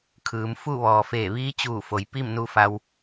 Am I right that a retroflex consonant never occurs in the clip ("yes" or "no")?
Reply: yes